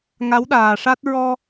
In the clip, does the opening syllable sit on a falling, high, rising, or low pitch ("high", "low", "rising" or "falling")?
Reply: rising